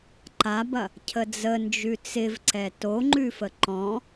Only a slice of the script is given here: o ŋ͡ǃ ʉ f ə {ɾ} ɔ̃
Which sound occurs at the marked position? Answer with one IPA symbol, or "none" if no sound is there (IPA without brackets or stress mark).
ǃ